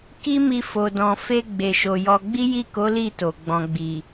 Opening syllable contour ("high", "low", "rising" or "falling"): high